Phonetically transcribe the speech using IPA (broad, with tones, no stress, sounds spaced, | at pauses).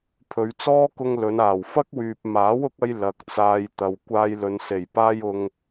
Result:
pʰ ɵ˨ ɥ t͡s ɔː˥ k ʊ˧ ŋ l ɵ˨˧ n aː˨˩ w f ɐ˥ k̚ w yː˨ p̚ m aː˨˥ w ʊ˨˥ k̚ ɐ˧ j l ɐ˨ k̚ t͡s aː˧ j t̪ ɐ˨ w kʷ aː˧ j l ɵ˨ n s e˨˩ j p aː˧ j ʊ˨ ŋ